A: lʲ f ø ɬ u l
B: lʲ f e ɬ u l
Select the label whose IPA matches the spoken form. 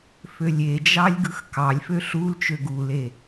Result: A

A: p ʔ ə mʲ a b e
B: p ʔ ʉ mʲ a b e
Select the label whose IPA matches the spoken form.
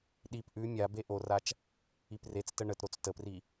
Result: B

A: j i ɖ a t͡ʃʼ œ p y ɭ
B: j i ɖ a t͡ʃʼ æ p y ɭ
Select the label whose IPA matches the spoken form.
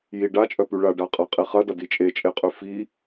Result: A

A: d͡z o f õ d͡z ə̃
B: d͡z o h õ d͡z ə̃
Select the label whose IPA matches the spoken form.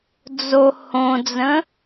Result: B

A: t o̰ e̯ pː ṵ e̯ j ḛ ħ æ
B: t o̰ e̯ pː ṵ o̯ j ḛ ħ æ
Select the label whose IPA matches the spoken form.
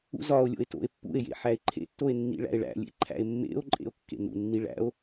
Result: A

